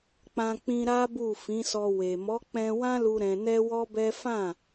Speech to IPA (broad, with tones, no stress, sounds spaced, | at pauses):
k͡p ã˧ k͡p ĩ˧ ɾ a˦ b u˦˨ f ĩ˨˦ s ɔ˧ w e˨ m ɔ˨˦ k͡p ɛ̃˧ w ã˦ l u˧ ɾ ɛ̃˧ n ɛ˦ w ɔ˦ b ɛ˦ f ã˦˨